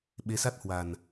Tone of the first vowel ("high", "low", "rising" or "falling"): rising